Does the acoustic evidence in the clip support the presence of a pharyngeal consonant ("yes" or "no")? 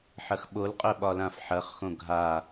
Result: yes